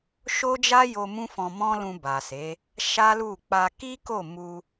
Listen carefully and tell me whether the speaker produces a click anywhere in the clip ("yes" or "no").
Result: no